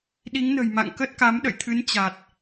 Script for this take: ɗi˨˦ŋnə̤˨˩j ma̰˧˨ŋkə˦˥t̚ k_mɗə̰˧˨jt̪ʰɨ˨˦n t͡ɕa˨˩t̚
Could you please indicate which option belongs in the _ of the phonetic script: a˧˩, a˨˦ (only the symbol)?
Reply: a˨˦